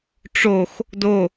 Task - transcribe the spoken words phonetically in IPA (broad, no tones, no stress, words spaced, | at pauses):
ʈ͡ʂox | do